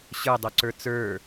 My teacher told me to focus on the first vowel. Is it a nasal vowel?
no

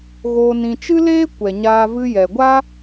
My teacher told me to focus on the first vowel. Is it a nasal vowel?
no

